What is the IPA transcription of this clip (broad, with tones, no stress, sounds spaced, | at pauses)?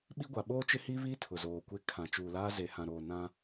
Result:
ɓ i˦ ɡʷ a˨ ɓ oː˦ t͡ʃ ɪ˦ h i˦ β i˦ tʰ ʊ˨ z oː˨ kʷ e˦ kʰ ã˨ t͡ʃ uː˨ l aː˦ z e˨ h ã˨ ɾ oː˨ n ã˦